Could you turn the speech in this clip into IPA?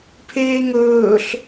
pʰ eː ŋ ɵː ɬ

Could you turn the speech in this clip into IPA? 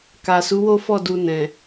k a˨ s u˨˦ w o˦ f ɔ˦˨ d u˧ n ɛ̃˨

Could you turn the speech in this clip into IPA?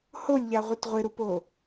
h o lʲ ʎ a ʁʷ e t ʁʷ ɪ ɾ u p o

